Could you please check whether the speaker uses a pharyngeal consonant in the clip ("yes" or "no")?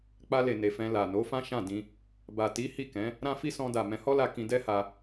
no